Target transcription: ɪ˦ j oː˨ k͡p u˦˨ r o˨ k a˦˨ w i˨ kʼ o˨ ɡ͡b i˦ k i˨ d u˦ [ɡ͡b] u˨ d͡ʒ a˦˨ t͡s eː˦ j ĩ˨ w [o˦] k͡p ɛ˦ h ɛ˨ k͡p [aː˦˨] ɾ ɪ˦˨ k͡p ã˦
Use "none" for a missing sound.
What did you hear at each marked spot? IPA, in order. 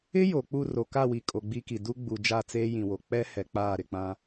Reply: ɡ͡b, o˨, aː˦˨

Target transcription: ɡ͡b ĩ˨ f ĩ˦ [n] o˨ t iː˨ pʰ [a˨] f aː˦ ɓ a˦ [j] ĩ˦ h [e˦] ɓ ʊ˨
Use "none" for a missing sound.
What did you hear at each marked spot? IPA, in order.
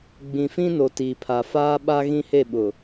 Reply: n, a˨, ɣ, e˦˨

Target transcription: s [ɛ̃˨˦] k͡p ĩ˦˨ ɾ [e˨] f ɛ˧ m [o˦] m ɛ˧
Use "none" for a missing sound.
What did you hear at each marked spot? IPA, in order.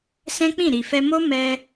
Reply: ɛ̃˦, i˨, o˦

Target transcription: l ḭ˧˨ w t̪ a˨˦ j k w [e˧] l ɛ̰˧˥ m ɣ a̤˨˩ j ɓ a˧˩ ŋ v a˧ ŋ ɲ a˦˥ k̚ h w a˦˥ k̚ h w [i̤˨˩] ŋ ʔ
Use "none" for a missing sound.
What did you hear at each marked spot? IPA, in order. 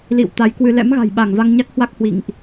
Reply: ɨ˧, ḭ˧˨

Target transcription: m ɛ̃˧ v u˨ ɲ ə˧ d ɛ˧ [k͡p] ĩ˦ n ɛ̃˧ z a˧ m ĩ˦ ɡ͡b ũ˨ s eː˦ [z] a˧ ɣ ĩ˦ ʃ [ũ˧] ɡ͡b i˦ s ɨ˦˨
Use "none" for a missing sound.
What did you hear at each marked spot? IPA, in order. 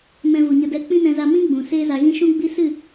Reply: k͡p, z, ũ˦

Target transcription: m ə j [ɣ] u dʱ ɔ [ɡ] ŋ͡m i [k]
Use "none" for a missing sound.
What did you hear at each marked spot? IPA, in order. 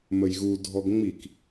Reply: ɣ, ɡ, k

